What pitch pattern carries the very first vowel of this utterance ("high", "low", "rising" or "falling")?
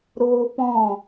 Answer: high